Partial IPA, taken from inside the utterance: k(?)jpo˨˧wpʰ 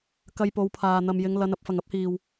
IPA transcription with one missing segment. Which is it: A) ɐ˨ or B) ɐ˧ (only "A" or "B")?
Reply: B